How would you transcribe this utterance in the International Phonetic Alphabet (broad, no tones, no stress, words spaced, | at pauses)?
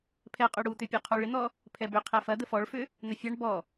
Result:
pʰɛqʼʏ ɽut̪ʏpʲu qʰuɭɪn̪ɔ | pʰɛbʏ qʰɛfɐ d̪əfɔɭfʏ | n̪ɐfʲaɳ bɔ